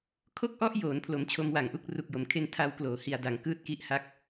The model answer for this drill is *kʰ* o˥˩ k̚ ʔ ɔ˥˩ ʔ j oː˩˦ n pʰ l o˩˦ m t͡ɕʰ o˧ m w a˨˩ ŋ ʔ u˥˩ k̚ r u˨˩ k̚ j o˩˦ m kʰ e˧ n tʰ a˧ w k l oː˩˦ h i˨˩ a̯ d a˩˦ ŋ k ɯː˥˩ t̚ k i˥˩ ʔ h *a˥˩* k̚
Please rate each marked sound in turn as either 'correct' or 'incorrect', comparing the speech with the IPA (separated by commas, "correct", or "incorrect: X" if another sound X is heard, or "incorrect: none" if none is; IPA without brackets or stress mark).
correct, correct